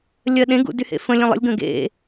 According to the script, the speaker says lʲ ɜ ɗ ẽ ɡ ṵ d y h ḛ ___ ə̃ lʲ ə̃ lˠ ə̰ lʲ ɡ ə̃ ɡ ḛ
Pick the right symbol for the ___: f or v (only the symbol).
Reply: f